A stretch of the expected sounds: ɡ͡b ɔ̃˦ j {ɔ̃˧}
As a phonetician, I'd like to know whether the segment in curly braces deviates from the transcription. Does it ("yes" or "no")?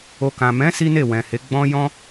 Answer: yes